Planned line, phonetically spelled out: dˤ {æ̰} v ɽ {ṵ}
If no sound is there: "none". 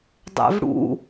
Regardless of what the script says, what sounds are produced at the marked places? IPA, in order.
æ̰, ṵ

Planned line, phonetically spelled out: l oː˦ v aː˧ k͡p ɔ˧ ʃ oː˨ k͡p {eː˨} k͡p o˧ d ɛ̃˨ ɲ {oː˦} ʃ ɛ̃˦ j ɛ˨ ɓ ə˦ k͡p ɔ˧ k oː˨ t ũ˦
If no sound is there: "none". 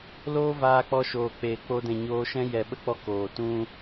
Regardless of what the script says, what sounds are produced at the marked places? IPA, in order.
eː˨, oː˧

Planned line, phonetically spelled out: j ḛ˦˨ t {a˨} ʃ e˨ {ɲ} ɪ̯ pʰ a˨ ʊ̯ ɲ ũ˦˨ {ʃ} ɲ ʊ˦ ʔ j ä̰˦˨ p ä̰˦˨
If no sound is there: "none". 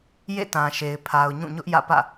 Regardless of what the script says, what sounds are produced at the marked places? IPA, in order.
ã˨, none, none

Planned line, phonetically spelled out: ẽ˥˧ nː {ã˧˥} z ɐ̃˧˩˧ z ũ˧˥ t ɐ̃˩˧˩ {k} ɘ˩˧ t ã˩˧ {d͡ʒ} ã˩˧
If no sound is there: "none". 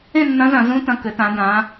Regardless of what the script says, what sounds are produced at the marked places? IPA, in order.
ɐ̃˧˥, k, d

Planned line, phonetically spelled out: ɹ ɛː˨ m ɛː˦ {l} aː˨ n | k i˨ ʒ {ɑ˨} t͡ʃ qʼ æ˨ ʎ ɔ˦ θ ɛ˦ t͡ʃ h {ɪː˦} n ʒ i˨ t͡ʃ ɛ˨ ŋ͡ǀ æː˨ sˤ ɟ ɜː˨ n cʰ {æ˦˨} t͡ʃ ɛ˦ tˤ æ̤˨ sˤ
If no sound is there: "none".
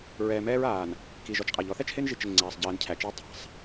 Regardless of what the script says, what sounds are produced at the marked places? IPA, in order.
ɹ, ɔ˨, ɪː˦, æ˨

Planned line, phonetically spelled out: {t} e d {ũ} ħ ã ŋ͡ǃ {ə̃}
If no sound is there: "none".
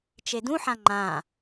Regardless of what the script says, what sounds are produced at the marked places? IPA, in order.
t͡ʃ, ũ, ã

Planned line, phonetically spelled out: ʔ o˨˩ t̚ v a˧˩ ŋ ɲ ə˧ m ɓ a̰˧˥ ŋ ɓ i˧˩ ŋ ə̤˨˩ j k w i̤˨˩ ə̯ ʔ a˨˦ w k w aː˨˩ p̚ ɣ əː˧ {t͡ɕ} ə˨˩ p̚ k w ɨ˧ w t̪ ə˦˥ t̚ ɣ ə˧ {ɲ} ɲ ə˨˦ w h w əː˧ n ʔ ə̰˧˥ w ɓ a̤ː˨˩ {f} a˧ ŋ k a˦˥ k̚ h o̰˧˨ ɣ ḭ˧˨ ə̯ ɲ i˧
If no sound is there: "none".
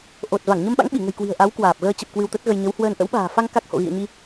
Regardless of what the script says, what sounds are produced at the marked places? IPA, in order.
t͡ɕ, j, f

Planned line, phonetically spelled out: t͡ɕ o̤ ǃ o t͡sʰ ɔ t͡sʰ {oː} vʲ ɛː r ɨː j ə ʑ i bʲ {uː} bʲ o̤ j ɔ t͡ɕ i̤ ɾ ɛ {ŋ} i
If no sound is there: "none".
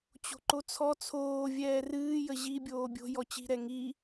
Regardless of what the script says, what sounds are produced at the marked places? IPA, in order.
oː, oː, ŋ

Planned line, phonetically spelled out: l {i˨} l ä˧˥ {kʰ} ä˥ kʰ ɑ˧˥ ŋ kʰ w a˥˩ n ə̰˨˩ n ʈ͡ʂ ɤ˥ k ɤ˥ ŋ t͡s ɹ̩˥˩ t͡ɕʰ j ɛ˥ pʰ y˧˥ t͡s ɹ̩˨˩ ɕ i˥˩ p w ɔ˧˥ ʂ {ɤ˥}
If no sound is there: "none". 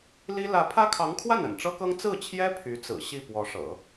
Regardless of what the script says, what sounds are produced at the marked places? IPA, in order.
i˥, pʰ, ɤ̰˨˩˦

